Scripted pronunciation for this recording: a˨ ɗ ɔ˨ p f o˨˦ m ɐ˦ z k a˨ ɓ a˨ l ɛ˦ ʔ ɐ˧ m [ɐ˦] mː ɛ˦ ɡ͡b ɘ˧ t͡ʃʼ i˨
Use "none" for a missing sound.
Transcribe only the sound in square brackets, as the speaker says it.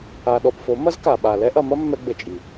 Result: ɐ˦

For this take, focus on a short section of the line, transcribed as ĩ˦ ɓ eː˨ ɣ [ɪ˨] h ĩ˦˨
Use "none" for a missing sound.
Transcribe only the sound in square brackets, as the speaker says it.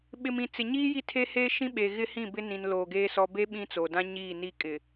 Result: ɪ˦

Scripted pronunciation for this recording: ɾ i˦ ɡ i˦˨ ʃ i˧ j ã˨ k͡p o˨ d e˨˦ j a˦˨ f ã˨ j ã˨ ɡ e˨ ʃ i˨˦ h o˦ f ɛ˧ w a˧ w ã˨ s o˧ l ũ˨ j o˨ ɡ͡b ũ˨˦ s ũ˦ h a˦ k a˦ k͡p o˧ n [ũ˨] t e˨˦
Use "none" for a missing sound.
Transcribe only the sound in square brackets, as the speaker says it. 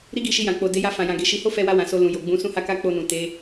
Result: ũ˨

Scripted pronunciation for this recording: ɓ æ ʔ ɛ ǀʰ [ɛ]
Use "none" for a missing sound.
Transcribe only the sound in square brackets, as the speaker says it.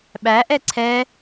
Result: ɛ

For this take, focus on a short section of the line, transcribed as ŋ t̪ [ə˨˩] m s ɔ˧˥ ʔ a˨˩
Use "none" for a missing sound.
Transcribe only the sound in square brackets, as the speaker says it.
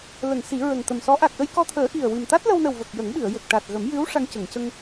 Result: ə˨˩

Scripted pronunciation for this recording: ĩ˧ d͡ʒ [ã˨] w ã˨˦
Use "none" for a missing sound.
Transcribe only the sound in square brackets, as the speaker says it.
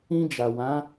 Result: a˨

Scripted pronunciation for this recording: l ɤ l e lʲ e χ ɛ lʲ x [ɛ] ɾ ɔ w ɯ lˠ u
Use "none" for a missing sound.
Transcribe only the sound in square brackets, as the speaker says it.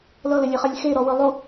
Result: e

